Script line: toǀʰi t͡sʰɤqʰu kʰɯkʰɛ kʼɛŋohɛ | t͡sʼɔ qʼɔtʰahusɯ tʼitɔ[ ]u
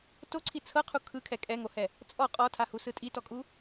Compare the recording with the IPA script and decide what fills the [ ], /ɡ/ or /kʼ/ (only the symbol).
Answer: kʼ